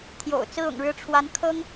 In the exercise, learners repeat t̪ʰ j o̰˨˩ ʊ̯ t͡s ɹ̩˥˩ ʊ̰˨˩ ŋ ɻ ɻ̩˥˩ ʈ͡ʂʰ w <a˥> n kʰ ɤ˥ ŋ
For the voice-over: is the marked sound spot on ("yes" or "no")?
no